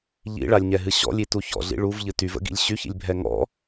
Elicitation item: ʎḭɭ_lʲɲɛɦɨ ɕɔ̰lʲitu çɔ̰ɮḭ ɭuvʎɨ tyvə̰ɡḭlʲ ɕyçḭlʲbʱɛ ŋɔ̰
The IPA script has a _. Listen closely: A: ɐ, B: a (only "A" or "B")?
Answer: B